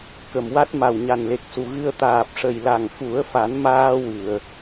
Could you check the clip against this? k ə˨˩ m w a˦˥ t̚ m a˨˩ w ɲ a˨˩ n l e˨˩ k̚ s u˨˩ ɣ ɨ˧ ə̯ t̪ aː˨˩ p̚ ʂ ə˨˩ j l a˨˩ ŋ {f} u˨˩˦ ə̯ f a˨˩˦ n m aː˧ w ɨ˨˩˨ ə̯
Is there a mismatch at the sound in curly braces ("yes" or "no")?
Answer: no